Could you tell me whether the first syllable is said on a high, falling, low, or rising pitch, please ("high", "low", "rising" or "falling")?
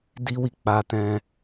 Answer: high